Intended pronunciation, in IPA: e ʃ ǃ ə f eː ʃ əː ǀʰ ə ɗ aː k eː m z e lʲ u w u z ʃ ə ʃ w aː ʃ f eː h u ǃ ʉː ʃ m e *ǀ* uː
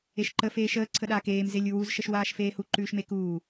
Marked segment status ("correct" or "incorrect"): incorrect